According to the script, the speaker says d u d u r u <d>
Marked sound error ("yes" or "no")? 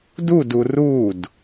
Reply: no